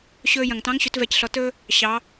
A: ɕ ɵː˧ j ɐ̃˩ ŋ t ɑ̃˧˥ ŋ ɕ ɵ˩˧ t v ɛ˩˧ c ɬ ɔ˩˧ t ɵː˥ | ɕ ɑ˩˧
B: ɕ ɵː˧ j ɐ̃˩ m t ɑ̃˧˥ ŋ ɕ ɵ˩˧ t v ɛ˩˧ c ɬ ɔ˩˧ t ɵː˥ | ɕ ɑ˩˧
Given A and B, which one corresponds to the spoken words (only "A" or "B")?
A